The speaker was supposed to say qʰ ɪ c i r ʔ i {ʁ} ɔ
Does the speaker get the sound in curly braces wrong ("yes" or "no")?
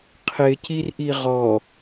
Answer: no